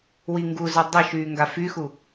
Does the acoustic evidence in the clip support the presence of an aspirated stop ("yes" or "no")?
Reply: no